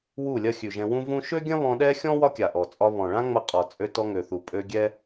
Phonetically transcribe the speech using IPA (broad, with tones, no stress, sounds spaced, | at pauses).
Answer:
w u˦˨ lʲ ɐ˦ xʲ ʉ˨ ʒ ɛ̃˧ w ũ˦ v ũ˦ ʃ ø˦ ɡʲ ɐ̃˦ β ɔ̃˧ ɗ ɛ˦ xʲ ɔ̃˦ w ɒ˦ kʲ a˨ ʔ ɔ˨ t͡sʼ ɒ˧ β ɔ̃˨ ɭ ã˦ ŋ͡m ɐ˧ qʼ ɒ˨ t͡sʼ ø˧ t ɔ˧ ŋ ø˨ θ u˨ pʼ ø˧ ɡʲ ɛ˦